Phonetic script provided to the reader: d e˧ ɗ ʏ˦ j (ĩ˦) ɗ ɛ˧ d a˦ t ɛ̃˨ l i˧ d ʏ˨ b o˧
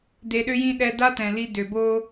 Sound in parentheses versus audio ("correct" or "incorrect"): correct